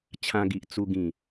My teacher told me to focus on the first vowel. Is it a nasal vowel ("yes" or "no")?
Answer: yes